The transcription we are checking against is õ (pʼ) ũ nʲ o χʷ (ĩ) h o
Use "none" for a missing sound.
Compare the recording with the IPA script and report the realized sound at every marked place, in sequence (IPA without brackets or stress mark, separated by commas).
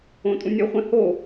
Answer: tʼ, ẽ